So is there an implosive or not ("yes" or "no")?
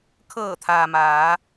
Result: no